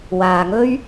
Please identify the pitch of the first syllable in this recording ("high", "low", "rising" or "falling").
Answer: low